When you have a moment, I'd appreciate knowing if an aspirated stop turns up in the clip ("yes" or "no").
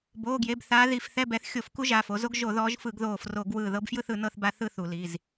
no